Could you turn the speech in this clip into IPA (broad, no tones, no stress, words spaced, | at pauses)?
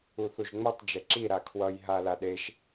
uθuʒŋ͡mʌtˤ d͡ʒɛǁi ɾakʰwʌj ɦalaɗeʃ